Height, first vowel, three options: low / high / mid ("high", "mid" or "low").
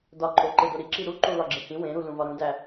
low